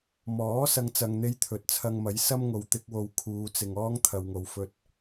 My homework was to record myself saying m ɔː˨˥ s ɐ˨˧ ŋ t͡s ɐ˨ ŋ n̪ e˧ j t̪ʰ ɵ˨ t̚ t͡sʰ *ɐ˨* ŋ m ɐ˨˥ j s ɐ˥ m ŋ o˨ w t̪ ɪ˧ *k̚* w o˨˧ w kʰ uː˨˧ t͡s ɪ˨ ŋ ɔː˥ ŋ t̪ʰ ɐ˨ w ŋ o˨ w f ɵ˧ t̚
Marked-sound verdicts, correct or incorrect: incorrect: ɐ˧, correct

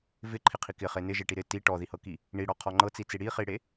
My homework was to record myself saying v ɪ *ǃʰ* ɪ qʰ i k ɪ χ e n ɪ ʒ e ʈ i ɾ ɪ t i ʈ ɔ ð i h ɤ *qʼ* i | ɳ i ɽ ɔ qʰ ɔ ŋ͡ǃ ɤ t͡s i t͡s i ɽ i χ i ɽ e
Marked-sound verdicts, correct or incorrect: correct, incorrect: k

